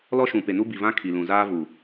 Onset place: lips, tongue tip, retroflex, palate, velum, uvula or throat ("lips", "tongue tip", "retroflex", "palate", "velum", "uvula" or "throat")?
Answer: tongue tip